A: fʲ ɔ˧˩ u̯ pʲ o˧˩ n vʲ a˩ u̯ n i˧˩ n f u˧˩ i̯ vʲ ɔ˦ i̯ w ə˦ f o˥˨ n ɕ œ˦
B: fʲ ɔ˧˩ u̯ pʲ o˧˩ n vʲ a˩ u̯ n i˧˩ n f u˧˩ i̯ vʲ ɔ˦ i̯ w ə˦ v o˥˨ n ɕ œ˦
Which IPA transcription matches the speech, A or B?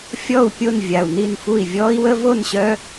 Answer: B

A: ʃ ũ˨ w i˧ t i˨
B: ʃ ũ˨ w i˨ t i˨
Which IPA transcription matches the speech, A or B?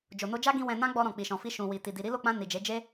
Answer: B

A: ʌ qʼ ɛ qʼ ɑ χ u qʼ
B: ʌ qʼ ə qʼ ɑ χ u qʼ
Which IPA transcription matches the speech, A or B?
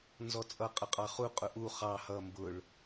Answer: B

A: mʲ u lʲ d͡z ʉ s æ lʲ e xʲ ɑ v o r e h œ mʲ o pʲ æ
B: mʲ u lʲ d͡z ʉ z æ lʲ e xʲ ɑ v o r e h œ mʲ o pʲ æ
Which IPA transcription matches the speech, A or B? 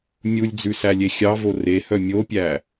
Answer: A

